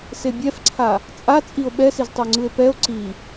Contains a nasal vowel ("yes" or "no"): no